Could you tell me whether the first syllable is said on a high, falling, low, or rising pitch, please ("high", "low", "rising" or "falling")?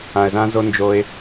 low